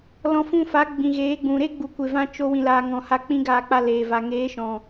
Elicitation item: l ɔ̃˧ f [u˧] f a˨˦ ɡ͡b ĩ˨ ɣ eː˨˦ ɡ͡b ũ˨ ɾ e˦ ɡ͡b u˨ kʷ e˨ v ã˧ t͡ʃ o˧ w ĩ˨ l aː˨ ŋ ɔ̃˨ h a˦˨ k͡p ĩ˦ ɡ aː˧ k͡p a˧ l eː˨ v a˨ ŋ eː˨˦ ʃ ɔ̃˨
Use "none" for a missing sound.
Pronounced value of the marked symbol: ũ˧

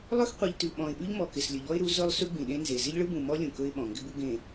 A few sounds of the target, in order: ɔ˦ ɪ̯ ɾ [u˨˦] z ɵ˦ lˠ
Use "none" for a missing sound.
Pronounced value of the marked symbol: u˨˦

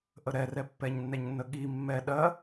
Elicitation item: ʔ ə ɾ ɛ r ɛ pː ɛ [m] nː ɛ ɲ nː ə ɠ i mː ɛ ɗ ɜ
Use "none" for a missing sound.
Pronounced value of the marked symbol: ɲ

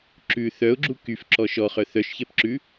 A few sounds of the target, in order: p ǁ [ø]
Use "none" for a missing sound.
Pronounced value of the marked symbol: ʉ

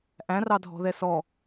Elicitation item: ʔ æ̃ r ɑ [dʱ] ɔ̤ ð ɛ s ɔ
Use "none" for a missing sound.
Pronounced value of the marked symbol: dʱ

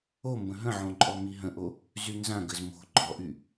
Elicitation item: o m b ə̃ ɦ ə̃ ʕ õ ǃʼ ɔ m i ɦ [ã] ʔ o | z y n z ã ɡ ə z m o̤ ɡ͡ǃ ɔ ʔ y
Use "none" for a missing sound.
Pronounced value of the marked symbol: ə̃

